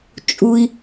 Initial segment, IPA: t͡ʃʼ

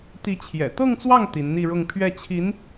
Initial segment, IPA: t̪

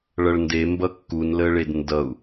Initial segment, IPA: ɭ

